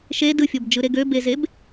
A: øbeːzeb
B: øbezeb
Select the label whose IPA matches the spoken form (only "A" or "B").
B